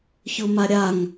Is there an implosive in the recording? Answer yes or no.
no